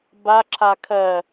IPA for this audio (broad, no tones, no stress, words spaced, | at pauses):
baǁʰa kʰɜ